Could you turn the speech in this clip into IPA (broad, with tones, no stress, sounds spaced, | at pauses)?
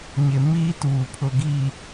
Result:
ɲ ɪ˨ m iː˦ t uː˨ pʰ ʊ˨ ɡ iː˨